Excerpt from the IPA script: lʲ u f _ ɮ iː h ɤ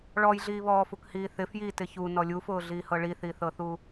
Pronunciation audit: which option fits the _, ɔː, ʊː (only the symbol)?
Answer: ʊː